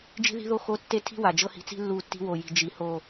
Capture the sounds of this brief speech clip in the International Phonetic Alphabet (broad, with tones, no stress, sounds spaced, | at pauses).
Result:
d͡ʒ i̤˦ ð i̤˦ ð o˦ x o˦ tː e˦ tʰ i̤˦ w a˨ d͡ʒ ɤ˦ h i̤˨ t͡s i̤˦ lː u˦˨ tː i̤˦ w o˨ j i̤˨ d͡ʒ i˨ h o˦˨